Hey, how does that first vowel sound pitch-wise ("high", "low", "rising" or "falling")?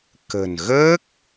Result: low